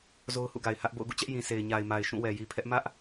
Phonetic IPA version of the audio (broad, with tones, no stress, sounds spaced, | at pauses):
z o˦ ʊ̯ h ṵ˦˨ ɡ a˨ ɪ̯ h ä˦ ʔ b o̰˦˨ ʊ̯ ɡ ṵ˦˨ t͡ɕ ɛ˦ ʔ j ĩ˨ sʰ e˨ ɪ̯ ɲ a˨ ɪ̯ m a˨ ɪ̯ ʃ ũ˦˨ w ɛ˨ j i˨ pʰ ɛ˦ ʔ m ä˦ ʔ